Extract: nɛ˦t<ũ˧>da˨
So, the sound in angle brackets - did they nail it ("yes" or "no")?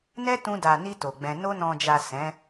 yes